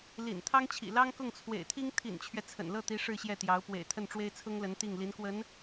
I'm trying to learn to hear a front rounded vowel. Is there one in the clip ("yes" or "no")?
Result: no